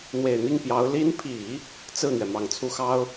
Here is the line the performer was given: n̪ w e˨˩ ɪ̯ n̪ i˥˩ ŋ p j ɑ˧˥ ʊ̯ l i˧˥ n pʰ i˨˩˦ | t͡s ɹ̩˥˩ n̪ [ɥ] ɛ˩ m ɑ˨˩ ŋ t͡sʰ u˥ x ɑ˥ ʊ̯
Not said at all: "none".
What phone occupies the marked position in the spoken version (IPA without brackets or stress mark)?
ɥ